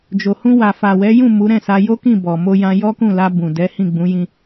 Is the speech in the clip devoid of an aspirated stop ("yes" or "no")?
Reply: yes